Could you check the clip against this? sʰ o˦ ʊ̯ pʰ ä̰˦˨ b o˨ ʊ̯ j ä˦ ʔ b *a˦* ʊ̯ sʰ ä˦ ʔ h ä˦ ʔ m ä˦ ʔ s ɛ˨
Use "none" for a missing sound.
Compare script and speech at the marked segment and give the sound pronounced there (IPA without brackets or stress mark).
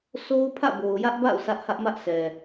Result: a̰˦˨